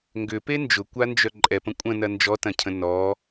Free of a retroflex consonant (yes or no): yes